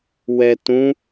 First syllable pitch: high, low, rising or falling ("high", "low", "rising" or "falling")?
low